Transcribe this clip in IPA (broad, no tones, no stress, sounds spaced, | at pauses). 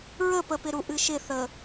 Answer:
ɹ ə p ə p ɪ ɾ u ʔ ɨ ʃ ɪ θ ə